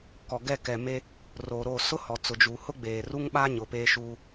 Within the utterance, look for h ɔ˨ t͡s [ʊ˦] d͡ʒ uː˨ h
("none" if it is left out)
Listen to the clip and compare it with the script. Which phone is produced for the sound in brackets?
ʊ˨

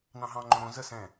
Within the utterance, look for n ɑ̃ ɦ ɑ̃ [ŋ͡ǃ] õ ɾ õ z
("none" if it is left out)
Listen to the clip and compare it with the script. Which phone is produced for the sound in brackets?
ŋ͡ǃ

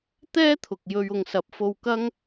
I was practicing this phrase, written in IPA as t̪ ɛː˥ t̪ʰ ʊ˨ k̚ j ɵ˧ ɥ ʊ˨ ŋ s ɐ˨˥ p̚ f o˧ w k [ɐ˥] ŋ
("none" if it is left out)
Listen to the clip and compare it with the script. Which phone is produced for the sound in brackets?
ɐ˥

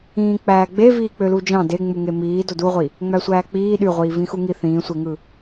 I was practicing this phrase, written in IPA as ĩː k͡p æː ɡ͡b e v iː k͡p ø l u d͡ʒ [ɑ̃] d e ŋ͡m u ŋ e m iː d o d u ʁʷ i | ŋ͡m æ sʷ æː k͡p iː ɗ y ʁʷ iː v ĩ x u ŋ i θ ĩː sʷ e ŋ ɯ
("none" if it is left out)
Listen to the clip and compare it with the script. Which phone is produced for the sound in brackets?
ɑ̃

